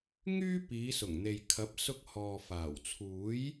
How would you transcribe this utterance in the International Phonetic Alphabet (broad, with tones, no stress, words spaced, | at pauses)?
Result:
ŋyː˥piː˨˧ sʊ˨˩ŋn̪e˨jkʰɐ˨˥p̚sʊ˧k̚ hɔː˨faː˨˩w t͡sʰuː˨˥j